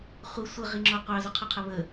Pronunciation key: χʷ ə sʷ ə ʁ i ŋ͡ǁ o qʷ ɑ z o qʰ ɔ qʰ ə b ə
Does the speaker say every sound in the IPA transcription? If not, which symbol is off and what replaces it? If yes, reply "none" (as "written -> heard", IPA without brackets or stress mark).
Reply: b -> β